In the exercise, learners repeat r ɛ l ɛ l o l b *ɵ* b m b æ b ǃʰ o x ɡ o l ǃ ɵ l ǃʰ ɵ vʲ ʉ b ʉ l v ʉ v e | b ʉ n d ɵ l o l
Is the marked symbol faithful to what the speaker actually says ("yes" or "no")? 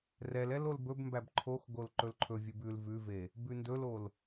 yes